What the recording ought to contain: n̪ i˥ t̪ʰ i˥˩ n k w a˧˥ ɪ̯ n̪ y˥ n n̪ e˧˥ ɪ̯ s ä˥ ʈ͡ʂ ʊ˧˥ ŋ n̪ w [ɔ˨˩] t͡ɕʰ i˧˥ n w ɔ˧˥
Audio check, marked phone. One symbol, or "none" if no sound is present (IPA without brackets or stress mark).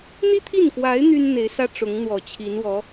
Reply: ɔ˨˩